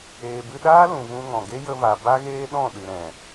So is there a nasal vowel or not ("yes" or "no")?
yes